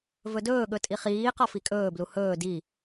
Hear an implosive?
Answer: yes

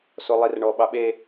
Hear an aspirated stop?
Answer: no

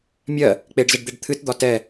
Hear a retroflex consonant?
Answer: yes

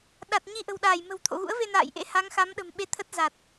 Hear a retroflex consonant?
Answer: no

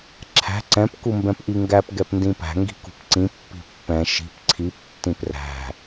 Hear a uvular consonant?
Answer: no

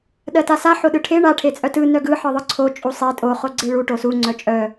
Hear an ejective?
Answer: yes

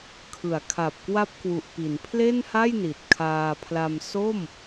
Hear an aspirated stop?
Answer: yes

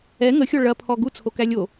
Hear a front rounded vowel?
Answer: no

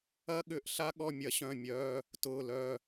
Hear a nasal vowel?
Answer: yes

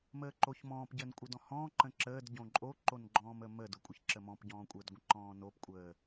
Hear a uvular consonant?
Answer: no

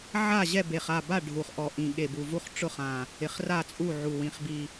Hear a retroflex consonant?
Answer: yes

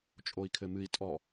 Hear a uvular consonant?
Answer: no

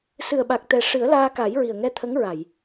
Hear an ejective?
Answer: no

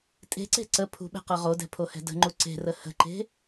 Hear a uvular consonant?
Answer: yes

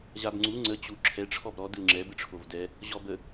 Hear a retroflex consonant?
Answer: yes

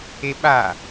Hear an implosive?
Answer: yes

